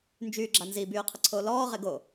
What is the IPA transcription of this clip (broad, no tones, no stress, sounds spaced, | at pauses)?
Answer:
n d͡ʒ yː ɡ͡ǁ a n z i b yː qʰ ə ǀʰ oː l ɔː ʁ e ɡ o